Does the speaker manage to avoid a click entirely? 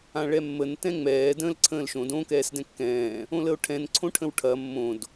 no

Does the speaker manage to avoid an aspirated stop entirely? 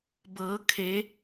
no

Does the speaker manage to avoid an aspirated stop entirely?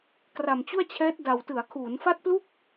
no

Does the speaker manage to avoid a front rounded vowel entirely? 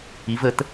yes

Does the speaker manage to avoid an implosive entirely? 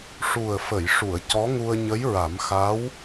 yes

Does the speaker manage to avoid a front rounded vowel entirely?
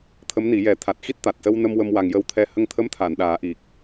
yes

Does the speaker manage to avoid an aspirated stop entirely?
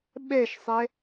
yes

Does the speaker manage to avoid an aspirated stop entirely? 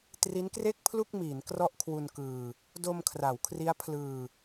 no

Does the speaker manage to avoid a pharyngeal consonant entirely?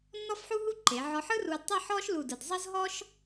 no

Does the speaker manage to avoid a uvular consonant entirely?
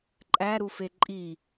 yes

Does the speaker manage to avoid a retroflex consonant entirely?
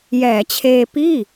yes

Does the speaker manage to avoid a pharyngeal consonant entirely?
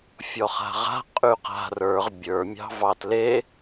yes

